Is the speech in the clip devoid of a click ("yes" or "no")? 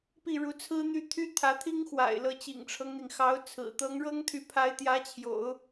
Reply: yes